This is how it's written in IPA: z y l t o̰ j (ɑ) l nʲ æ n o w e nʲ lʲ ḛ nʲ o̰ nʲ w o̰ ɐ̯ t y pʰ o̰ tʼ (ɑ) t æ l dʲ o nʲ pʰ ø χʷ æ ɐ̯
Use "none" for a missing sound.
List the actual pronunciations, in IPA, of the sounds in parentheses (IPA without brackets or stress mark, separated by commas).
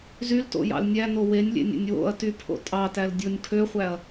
ɑ̰, ɑ